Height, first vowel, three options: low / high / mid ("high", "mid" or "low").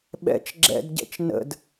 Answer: mid